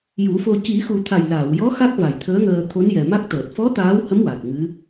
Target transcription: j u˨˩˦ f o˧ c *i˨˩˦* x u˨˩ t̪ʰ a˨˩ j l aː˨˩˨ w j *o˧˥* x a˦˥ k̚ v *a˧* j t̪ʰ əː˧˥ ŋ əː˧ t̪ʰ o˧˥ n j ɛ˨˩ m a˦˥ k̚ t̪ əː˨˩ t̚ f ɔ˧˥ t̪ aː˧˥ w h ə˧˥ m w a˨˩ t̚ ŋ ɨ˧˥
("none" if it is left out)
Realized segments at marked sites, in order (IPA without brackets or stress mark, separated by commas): i˨˩˦, ɔ˧˥, a˨˩